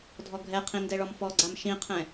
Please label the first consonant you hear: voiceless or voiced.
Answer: voiced